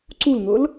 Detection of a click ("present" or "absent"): present